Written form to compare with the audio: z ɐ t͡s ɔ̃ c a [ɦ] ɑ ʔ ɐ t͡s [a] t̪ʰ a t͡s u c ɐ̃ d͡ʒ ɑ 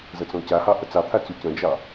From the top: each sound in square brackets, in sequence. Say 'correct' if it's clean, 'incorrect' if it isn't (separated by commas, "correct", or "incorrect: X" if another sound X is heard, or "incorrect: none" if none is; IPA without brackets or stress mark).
incorrect: h, incorrect: ɑ